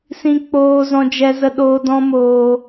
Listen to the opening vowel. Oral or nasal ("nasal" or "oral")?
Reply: nasal